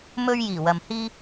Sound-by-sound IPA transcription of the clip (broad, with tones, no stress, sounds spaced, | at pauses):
m ɵ˧ ɥ j iː˨˩ w ɐ˨ m h iː˥